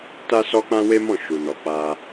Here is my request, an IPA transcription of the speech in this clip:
t a˦ s ɔ˦ k͡p ã˦ w e˦ m ɔ̃˦˨ ʃ u˨ n ɔ˨ k͡p a˧

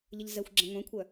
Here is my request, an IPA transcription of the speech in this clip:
ʎ ə ʎ z ɛ xʷ ɡ͡ǁ ɐ̃ ŋʷ ɛ̃ kʷʰ œ

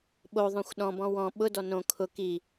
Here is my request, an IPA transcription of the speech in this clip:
ɓ o ðˤ õ xʷ ɗ ɔ̃ b ɔ̃ w ɔ̃ ɓ ʊ d ɔ n õ kʰ ʊ k i

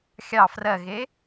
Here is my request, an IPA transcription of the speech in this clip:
xʲ ɑ f r ɜ ɣ e

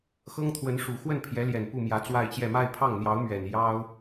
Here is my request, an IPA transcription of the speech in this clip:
x ɤ˥ ŋ t̪ʰ w ə˧˥ n ʂ u˨˩ x w ə˥˩ n pʰ j ɛ˧˥ l j ɛ˨˩ n p u˥˩ m j ä˧˥ t͡s w a˥˧ ɪ̯ t͡ɕ j ɛ˥˧ m a˥˧ ɪ̯ pʰ ɑ˥˩ ŋ n̪ j ɑ˧˥ ʊ̯ m ɥ ɛ˨˩ n j ɑ˥ ʊ̯

